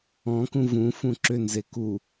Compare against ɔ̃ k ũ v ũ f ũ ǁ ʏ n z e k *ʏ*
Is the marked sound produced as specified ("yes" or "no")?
no